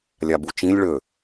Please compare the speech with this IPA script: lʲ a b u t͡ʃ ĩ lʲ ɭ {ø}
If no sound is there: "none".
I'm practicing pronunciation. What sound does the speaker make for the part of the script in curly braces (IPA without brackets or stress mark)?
ø